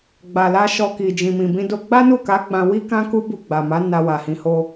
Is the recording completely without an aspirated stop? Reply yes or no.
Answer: yes